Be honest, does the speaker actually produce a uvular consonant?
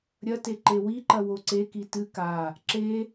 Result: no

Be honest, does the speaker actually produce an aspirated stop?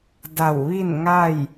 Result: no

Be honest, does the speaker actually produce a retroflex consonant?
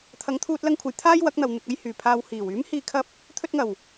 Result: no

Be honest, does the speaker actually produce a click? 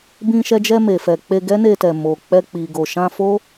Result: no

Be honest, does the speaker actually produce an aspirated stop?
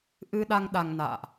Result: no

